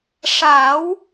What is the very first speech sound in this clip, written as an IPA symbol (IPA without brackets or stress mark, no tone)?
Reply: ʂ